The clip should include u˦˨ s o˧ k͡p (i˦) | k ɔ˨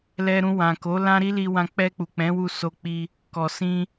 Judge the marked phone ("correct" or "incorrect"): incorrect